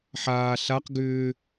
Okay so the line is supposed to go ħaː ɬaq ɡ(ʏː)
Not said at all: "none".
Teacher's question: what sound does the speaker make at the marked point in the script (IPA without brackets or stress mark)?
ʏː